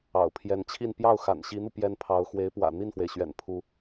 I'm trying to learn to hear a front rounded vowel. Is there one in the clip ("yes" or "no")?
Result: no